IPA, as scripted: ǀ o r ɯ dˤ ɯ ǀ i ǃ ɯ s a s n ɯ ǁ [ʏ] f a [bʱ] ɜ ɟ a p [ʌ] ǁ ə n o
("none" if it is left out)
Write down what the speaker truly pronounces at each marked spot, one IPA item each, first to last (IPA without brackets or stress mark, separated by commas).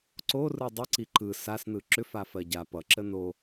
ʏ, f, ʌ